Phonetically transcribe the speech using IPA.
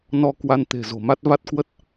n ɔ˧ k w a˧ n t̪ e̤˨˩ z o̤˨˩ m a˦˥ t̚ v a˦˥ t̚ k w ə˦˥ t̚

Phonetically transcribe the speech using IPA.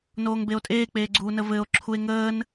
n oː ŋ b e o̯ tʼ eː k͡p eː ɡ͡ǀ uː n ə v ɘː o̯ ǁʰ u e̯ ŋ əː n

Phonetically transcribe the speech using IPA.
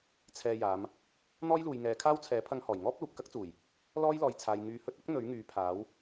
t͡sʰ ɛː˧ j aː˨˧ m | n̪ ɔː˥ j l uː˨ j ŋ ɛː˨˧ kʰ aː˥ w t͡sʰ ɛː˨˥ pʰ ɐ˥ ŋ h ɔː˨˩ j ŋ ɔː˥ p̚ l uː˨ p̚ k ɐ˥ k̚ t͡s uː˨˩ j | l ɔː˥ j l ɔː˨ j t͡sʰ aː˨ j ŋ yː˨˧ h ɵ˧ t̚ ɐ˥ k̚ n̪ ɵ˨˥ ɥ ŋ yː˨˧ pʰ aː˨˥ w

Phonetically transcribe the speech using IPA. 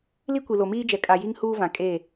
l i˦ kʷ i˨ l o˨ m iː˦ d͡ʒ ɛ˨ kʼ a˨ j i˦ ŋ h uː˦ v ã˨ kʼ e˦˨

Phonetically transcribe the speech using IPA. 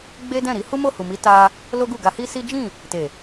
ɡ͡b e˦ d ɛ̃˦˨ ɾ i˨˦ h u˦ m o˦˨ h u˨ m i˨˦ t a˧ | l o˦ ɡ u˦˨ ɡ a˧ h i˦ s i˦ d͡ʒ ĩ˦˨ | t e˨

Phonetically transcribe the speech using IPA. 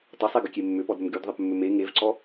tˤ ə sˤ e ɡ ʏ kʲ e mː ʏ p ɔ d ɾ ʏ m ɡ y d ðˤ ə p mː ʏ m e ŋ e v ǀ ɔ

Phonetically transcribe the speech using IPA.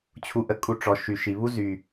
t͡ɕʰ u˧ ʔ ə˧ kʼ u˧ ʈ͡ʂ ɔ˨ ʃ y˨ ʃ i˨ β u˦ z y˨

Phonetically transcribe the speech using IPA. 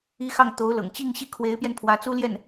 i˥ x ɑ˥˩ ŋ t̪ o˧˥ ʊ̯ l ɤ̰˨˩ ŋ t͡ɕ i˥˧ ŋ ɕ i˥˩ kʰ w e˧˥ ɪ̯ p j ɛ˧ n pʰ w ä˧˥ t͡s u˥ l j ɛ˥˩ n

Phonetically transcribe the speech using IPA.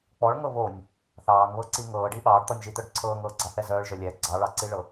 k͡p ɔ ɭ ŋ ɤ β o nʲ | θ ɑː ŋ β ɤ ǀ i ŋ ɤː ɖ i ɓ ɑː ɖ t̪ ɔ nʲ ʒ i t̪ œ ɖ ǀʰ ɤː ŋ ɤː ɡ͡ǀ ɑ θ ɛ z œː ɭ ʒ œ lʲ ɛ ɡ͡ǀ ɑ ɭ ɑ ǀ i ɭ ɤ

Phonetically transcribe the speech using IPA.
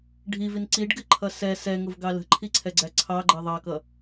ɖʱ i v i n ǀ i ɖ ɡ ɪ ǃʰ ʌ s ɛ s ɛ ŋ ʊ v ɡ ɑ l ə̤ ǃʰ i ǀʰ ɛ ɡ͡ǀ æ ǀʰ ɑ ɡ͡ǃ ɜ ðˤ ɑ k ʌ

